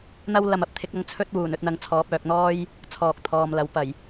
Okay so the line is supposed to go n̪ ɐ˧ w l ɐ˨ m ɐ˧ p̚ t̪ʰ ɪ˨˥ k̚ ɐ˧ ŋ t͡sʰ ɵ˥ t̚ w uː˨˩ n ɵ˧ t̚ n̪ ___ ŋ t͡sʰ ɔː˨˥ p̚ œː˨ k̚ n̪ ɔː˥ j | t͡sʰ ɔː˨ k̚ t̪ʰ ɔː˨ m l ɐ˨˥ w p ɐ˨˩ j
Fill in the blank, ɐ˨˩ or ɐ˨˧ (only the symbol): ɐ˨˧